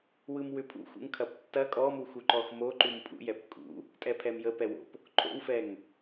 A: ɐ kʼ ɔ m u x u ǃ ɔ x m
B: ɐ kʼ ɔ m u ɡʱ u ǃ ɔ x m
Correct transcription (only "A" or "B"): A